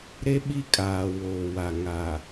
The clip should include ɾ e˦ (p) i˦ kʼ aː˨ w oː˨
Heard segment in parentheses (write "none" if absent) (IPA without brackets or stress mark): ɓ